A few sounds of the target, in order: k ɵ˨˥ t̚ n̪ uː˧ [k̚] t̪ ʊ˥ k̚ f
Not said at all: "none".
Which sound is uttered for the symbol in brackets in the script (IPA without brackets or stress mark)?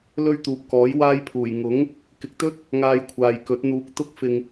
k̚